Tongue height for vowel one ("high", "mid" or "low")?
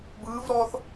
high